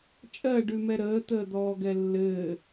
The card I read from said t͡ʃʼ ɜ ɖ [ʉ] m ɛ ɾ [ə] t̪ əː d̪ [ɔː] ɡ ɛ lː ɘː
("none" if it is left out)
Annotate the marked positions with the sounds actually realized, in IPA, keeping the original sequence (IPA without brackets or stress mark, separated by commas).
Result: ʉ, əː, ɔː